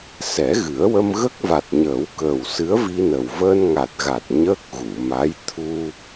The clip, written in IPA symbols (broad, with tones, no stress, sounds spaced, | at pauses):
s ɛ˨˩˦ ɣ ɨ˨˩˦ ə̯ w ə˧ m ɣ ə˦˥ k̚ v a˨˩ t̚ ɲ əː˨˩˦ w k əː˨˩ w s ɨ˧˥ ə̯ v i˧ n ə˨˩ w v əː˧ n ŋ a˨˩ t̚ ɣ a˨˩ t̚ ɲ əː˦˥ k̚ ɣ u˨˩˨ m a˧˥ j t̪ʰ u˧